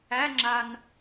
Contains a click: yes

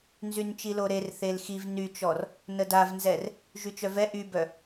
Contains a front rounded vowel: yes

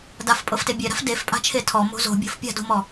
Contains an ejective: yes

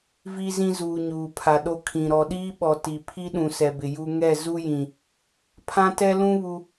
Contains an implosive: yes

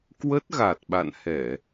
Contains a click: no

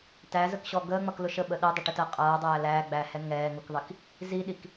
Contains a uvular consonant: yes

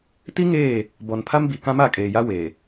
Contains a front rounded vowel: no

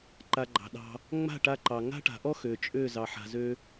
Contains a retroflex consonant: yes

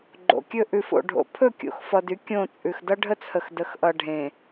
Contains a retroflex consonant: yes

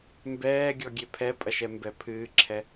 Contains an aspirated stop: yes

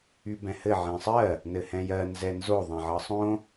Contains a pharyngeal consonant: yes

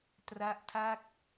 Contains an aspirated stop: yes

